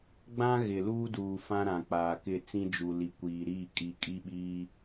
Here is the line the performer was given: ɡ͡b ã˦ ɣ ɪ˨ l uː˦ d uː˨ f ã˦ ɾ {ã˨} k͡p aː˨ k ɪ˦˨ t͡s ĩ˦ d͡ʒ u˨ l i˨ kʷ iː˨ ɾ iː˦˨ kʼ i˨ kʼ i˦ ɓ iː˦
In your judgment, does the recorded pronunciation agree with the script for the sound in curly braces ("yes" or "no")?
yes